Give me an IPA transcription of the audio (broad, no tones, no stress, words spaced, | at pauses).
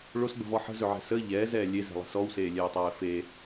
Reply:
ɭosɡ͡bə̤vɔ ħə̤zɵʕɛ̤ səː ʎɛːzɛː lʲezɛ̤lˠə̤ sɔwseːlʲɛːtˤɛː fe